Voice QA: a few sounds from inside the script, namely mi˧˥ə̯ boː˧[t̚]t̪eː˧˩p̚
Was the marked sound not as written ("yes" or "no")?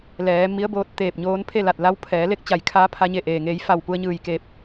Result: no